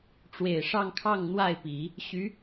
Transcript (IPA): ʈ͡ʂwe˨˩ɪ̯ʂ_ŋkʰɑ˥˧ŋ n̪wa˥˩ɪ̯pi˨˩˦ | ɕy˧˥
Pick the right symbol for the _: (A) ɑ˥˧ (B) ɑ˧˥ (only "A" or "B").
A